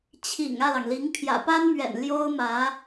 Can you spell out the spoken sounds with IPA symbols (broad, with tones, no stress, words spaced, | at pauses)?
t͡ɕʰḭ˨˩ŋ ä˥˩lɑ˩ŋli˧˥ŋ pʰjä̰˨˩pa˥nmɥɛ̰˨˩n ljo˥ʊ̯mä˧˥